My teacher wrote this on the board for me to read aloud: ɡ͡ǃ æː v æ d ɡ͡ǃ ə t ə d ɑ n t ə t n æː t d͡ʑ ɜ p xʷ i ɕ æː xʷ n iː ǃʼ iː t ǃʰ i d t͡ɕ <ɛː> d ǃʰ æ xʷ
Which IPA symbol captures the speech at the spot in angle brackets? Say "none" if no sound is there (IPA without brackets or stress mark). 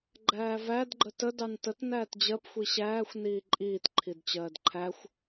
ɜː